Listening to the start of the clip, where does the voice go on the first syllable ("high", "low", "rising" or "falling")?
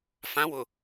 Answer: rising